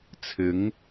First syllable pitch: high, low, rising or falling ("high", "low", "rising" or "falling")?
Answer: rising